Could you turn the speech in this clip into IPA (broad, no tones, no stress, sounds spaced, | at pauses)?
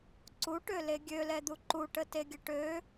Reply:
ǀ u ʈ ø l e ɡʲ ø l ɛ d̪ u ǃ u ʈ ə t e ɡʲ ə ʈ ø